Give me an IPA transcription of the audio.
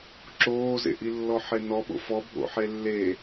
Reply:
ǁ oː z ḛ ʔ i lː ɔ ħ e n ɔ ɓ o̰ f ɔ bʱ o̰ ħ e lː e

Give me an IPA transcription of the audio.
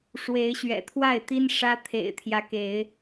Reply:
ʂ w e˨˦ ɪ̯ ɕ ɥ ɛ̰˨˩ t̪ʰ w a˥˨ ɪ̯ t̪ i˦ n ʂ ä˦ t̪ʰ ḛ˨˩ ɪ̯ t̪ʰ j ä˦ k e˨˦ ɪ̯

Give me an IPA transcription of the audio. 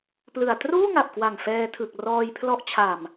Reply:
p l ɯ˨˩ a̯ t r uː˥˩ ŋ a˨˩ p̚ k w a˨˩ ŋ f ɛː˧ tʰ ɯ˨˩ k̚ r ɔː˧ j pʰ l ɔ˦˥ ʔ t͡ɕʰ a˨˩ m

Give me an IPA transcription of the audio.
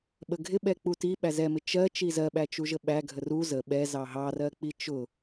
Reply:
ɓ ə ɡʱ ɪ ɓ ɛ k͡p u t i ɓ æ z ɛ m ɪ t͡ʃ ɜ t͡ʃ i z ɜ ɓ æ t͡ʃ u ʒ ə ɓ æ ɡʱ ə r u z ə ɓ ɛ z ɑ ɦ ɑ r ɜ k͡p i t͡ʃ ʊ

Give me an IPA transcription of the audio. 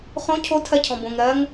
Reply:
χ õ cʰ o tʰ ɜ cʰ ɔ̃ b õ ŋ ɾ ɜ ŋ

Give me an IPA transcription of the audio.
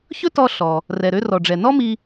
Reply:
ç ɵ˥ t ɔ˧ ɬ ɔ˩ | r ɛ˩ ɾ ø˧ r ɔ˩ ɖ͡ʐ ɛ˩ n ɔ˥ m i˧

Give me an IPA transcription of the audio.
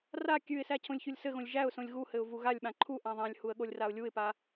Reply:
r a kʲ ʉ ɪ̯ s æ cʰ õ lʲ ç u lʲ s ɘ ɣ õ lʲ ʒ æ ʊ̯ s õ lʲ ɣ u h ɘ ʊ̯ v u ɣ a lʲ ɓ ã ǃʰ u ʔ ã ðˤ ã lʲ h u ə̯ ɠ o lʲ r a ʊ̯ lʲ u ɪ̯ p a

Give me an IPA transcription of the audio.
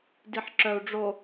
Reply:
d i ħ ǁ œ u̯ ɖ͡ʐ o

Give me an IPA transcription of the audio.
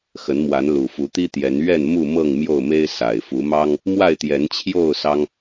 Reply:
x ə˨˦ n m w a˨˦ n l u˨˩ f u˨˦ t̪ i˦ t̪ j ɛ˨˦ n ɥ ɛ˥˨ n m u˥˨ m ɤ˥˨ ŋ m j o˥˨ ʊ̯ m e˦ ɪ̯ s a˨˩ ɪ̯ f u˨˦ m ɑ˦ ŋ | m w a˥˨ ɪ̯ t̪ j ɛ˨˦ n t͡ɕʰ j o˥˨ ʊ̯ s ɑ˦ ŋ

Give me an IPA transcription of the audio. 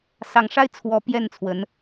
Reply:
s ɑ˧˥ ŋ ʂ a˥ ɪ̯ t͡sʰ w ɔ˧˥ p j ɛ˥˩ n t͡sʰ w ə˧˥ n

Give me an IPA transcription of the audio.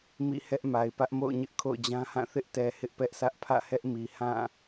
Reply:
m ḭ˦˨ h ɛ˦ ʔ m a˨ ɪ̯ p ä˦ ʔ m o̰˦˨ ʊ̯ ɲ ɪ˦ ʔ kʰ o̰˦˨ ʊ̯ d͡ʑ ã˦ h ã˦˨ θ ɪ˦ ʔ t ɛ˨ h ɪ˦ ʔ p ɛ˦ ʔ sʰ ä˦ ʔ pʰ ä̰˦˨ h ɛ˦ ʔ m i˨ h ã˦˨

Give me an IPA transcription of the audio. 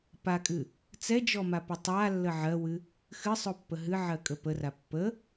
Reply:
p a kʼ ɨ | t͡s ɛ d͡ʒ ɔ m a p ɨ tˤ a lː ə ʕ ɜ w ɨ | x ɨ sˤ o pː ə ɦ ɨ ʕ ɜ kʼ ə p ə r a pː ə

